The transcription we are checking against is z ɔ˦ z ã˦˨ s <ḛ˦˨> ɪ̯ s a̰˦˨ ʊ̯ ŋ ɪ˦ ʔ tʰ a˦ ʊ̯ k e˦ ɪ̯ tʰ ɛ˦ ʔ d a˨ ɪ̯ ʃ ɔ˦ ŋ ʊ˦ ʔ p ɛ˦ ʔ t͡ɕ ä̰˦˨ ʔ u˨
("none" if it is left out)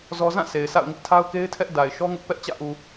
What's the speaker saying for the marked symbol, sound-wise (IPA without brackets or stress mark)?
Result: e˨